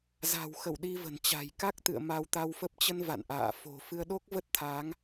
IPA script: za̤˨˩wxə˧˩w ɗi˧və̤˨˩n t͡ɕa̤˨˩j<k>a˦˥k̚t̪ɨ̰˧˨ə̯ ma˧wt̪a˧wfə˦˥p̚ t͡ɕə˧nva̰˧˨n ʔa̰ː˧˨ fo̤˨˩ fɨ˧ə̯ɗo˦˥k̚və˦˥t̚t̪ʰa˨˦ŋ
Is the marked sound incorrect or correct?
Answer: correct